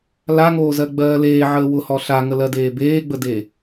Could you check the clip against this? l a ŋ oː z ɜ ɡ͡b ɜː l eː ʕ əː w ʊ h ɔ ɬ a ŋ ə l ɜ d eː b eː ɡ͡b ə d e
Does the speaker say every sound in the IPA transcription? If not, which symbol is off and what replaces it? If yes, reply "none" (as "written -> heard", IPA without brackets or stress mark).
none